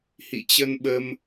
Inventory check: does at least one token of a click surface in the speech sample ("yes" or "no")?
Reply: no